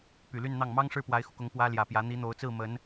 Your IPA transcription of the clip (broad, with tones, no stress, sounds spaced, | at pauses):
p y˨˩ l y˥˧ n n̪ ɑ˥˩ ŋ m ɑ˥ ŋ ʂ ɻ̩˥˩ p w a˧˥ ɪ̯ x u˧ k ʊ˧˥ ŋ p w ä˥ l j ä˨˩ p j ä˧˥ n̪ i˧˥ n̪ o˧˥ ʊ̯ t͡s ɹ̩˥˩ m ə˧˥ n